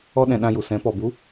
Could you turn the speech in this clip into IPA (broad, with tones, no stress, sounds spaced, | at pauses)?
ɔ˦ ɗ ɛ̃˧ ɗ ã˧ j u˨ s ɛ̃˨˦ p ɔ˨ b u˨˦